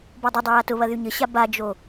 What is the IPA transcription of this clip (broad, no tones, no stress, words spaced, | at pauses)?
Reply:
bɔdˤədˤə jatʊβɐ ðyɲəɕa bad͡ʒo